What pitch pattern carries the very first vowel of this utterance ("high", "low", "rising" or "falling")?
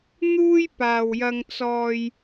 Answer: high